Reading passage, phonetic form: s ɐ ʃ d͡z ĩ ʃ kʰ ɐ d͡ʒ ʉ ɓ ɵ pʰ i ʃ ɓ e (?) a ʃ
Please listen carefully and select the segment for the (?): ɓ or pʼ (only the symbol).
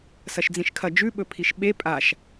pʼ